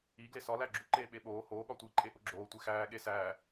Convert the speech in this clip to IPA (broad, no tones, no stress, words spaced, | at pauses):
i ɡlesɒ læɡ͡ǁu ǃeːɓeɓoː hoː ɠɒtʷi ǃʼeʔoɡ͡ǁoː tʷexæː ɠesæː